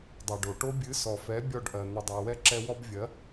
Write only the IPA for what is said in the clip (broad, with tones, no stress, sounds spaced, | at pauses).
dˤ ɜ˨ ɖ o˨ ʈ o˦ bʲ ɨ˨˦ s ɔ˨ f ɛ˨˦ bʲ ɔ˦˨ ɖ ʔ ɜ˨ n̪ ɨ˨ dˤ ɜ˨ w ɛ˧ ǁ ɛ˧ w ɔ˧ b vʲ ɜ˨˦